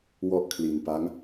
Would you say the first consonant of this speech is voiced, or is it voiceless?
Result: voiced